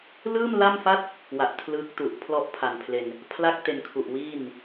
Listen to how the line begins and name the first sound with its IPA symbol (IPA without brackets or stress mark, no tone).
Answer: l